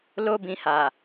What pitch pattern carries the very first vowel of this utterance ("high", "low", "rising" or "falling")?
high